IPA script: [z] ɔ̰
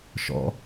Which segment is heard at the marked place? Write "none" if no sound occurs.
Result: ʃ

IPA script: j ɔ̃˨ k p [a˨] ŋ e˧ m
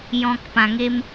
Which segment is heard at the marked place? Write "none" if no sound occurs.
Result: ã˨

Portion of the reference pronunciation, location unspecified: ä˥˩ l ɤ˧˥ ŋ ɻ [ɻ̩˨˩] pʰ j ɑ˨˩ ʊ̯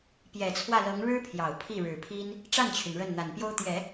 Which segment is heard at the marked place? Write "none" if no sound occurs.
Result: ɻ̩˥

